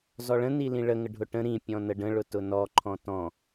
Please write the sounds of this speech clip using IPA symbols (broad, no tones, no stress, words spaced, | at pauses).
zɔɭə̃ nilĩɭə ŋəɖʱʊʈə̃ ɾĩ pʲɔ̃nəɖə̃ ɭʊtʊnɔ ǃʰɔ̃tɔ̃